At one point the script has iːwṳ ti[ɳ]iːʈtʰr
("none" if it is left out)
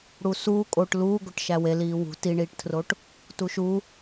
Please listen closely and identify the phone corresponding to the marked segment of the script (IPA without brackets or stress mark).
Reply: ɳ